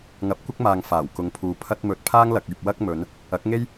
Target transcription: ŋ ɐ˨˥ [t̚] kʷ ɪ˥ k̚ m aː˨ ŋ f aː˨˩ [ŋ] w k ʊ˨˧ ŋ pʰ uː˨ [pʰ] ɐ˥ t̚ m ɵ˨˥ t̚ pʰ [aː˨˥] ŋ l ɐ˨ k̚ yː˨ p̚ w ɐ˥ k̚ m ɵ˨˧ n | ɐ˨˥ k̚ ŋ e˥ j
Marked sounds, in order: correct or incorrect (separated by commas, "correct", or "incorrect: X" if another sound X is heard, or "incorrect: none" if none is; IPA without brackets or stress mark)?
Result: incorrect: p̚, incorrect: none, correct, incorrect: aː˥